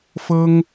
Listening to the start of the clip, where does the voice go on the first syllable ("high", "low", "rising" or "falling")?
high